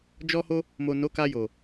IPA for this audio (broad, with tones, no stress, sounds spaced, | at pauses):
d͡ʒ ɔ˧ h o˧ | m o˨ n o˨˦ k a˧ j o˨